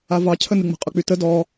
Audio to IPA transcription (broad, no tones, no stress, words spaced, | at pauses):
avɑ cʰənɨŋ͡mə̤ qʼʊk͡pytə dɔ